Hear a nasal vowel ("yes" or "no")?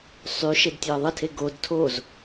no